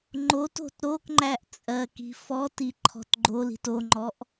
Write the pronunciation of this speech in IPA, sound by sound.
ŋ͡ǃ o t o̤ t ɾ o k ŋ͡ǃ æ ʔ t͡sʼ ɜ k i̤ f ɔ t i ǃʰ ɔ̤ t ɡ͡ǃ o l i̤ t o ŋ͡ǃ ɔ ʔ

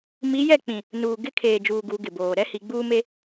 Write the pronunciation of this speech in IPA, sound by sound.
m i˨˦ j ɛ˦˨ k͡p ĩ˨ | n uː˨ ɡ ɪ˦ kʰ eː˨ d͡ʒ uː˨ ɡ u˨˦ ɡ ɪ˨ b oː˨ ɾ ɛ˦ h i˨ ɡ͡b uː˦ m e˦

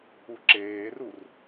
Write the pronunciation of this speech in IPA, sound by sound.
u ǁ eː r u r

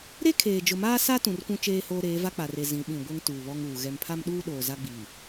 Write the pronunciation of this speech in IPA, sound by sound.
ɾ e˦ kʰ eː˨ d͡ʒ ʊ˨ m aː˦ s a˦ t ũ˨ r kʷ ũ˦ t͡ʃ eː˦ h oː˦ ɾ eː˨˦ v a˦ k͡p a˨ r e˨ z ĩ˨˦ ɓ ĩ˨ ɡʷ ɛ˦ ŋ t uː˨ β ɔ˦ ŋ uː˨ ɣ ɛ˨ m pʰ a˦ m ɗ uː˦ ɗ oː˨ z a˦ ɡ͡b iː˨

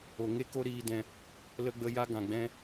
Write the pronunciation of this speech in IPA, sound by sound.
o˨ ŋ e˧ k o˧ ɾ iː˧ d ɛ̃˧ | l ə˧ ɡ͡b ə˧ j a˧ ɡ ã˨ ɡ͡b ɛ̃˧

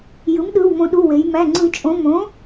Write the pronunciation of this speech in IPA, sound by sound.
j ɯ˩˥ m ɗ ɯ˩˧˩ w m õ˧˩˧ ɗ u˩˧˩ w e˩˧ j m æ˩˧˩ ŋ͡ǀ ɯ˧˩˧ t͡ʃʼ õ˩˧˩ m õ˩˥

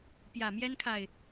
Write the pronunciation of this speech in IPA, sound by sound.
p j ä˨˩ m j ɛ˦ n kʰ a˨ ɪ̯

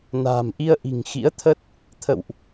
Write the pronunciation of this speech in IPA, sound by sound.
n a̤ː˨˩ m ʔ i˧ ə̯ ʔ i̤˨˩ ŋ x ḭ˧˥ ə̯ t̪ʰ ə˦˥ t̚ | t̪ʰ ə̰˧˨ w ʔ

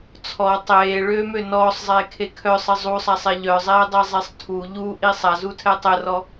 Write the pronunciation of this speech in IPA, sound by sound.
t͡sʰ ɔ tˤ eː ɭ øː m ø n ɔː sˤ zˤ eː kʰ e kʰ œ sˤ ə zˤ u sˤ a sˤ e ʎ œ zˤ eː dˤ e zˤ ɛ sˤ tʰ u ʎ u ʔ i sˤ a z u tʰ ɛ tˤ ə r ɔ

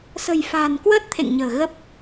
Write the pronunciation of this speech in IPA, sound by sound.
s ə̤˨˩ j f a̤ː˨˩ n k w əː˦˥ t̚ t̪ʰ ḛ˧˨ ŋ ɲ ə̤ː˨˩ ɣ ə˦˥ p̚

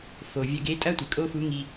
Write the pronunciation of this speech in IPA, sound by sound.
f o˩ vʲ ɐ˧ ɡ e˧˥ tʼ ɐ˥ tʷ ɨ˩ kʼ o˥ f u˧˥ ŋ i˧

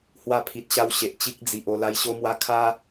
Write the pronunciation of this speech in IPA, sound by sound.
h w a˧ pʰ i˨ t̚ ɕ a˧ w ɕ e˨ ʔ t͡ɕ i˦ k̚ d͡z i˨ ʔ o˧ l a˦ j ɕ o˦ m w a˦ kʰ a˦

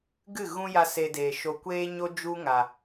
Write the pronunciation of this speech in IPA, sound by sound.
ɡ ɨ˦˨ ɣ ũ˦ j a˧ s e˧ d eː˨ ʃ o˧ kʷ eː˦ ɲ o˦ d͡ʒ u˦ ŋ a˨

